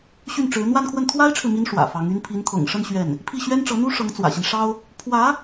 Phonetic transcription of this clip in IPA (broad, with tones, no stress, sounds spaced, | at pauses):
ɕ y˥˩ n ʈ͡ʂ ɻ̩˧˥ n̪ w a˥˧ n kʰ w ə˥˩ n t̪ʰ w a˥ ɪ̯ ʈ͡ʂʰ ɻ̩˨ m i˧˥ n ʂ w ä̰˨˩ f ɑ˧˥ ŋ y˥ n pʰ i˧˥ n t̪ʰ ɤ̰˨˩ ŋ ʂ ə˥˧ n ɕ ɥ ɛ˥˩ n | pʰ i˥˩ ɕ ɥ ɛ˥ n ʈ͡ʂ ɤ˧˥ n̪ u˥ ʂ ɤ˧˥ ŋ t͡s w ä̰˨˩ ɕ i˦ n ʂ ɑ˥ ʊ̯ | pʰ w ä˧˥